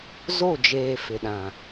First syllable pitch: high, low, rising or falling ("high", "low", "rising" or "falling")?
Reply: falling